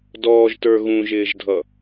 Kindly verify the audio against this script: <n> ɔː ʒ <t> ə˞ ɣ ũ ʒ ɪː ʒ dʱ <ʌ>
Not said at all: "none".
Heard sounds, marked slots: d, t, ʌ

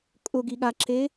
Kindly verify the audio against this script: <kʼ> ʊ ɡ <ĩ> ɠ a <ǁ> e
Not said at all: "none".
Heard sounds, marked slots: kʼ, i, ǁ

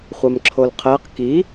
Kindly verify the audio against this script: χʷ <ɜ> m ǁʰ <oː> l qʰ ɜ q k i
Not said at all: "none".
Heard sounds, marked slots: ɜ, o

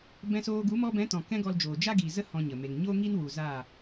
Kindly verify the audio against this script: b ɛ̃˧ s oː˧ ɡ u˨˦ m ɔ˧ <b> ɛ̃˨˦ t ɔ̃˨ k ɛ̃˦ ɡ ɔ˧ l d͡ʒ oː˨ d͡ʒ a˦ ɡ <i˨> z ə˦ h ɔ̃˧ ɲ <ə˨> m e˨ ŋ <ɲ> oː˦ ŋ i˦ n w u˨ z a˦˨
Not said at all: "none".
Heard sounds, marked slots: b, i˨, ə˨, ɲ

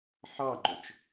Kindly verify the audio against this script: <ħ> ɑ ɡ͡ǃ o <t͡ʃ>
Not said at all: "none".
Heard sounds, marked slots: ħ, t͡ʃ

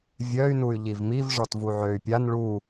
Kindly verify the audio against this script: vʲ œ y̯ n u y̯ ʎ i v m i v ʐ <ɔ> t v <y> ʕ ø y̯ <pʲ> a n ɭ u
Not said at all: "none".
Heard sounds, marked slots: ɔ, u, pʲ

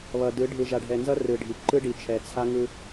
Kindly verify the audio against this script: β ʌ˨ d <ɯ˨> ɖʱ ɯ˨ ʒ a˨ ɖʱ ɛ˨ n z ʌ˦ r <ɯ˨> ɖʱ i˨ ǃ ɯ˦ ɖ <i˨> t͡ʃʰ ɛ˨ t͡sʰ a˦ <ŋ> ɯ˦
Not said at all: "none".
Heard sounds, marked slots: ɯ˨˦, ɯ˨, i˨, ŋ

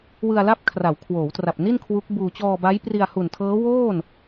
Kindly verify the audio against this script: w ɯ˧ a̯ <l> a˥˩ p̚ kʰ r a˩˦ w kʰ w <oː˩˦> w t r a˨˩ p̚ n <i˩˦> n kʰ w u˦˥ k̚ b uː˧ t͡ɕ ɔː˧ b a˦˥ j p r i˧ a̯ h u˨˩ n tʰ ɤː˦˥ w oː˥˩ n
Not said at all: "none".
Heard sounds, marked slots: l, oː˩˦, i˥˩

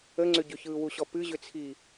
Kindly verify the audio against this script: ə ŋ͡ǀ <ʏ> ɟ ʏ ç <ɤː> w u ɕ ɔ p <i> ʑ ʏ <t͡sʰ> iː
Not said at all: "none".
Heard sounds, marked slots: ʏ, ɯː, ɨ, t͡sʰ

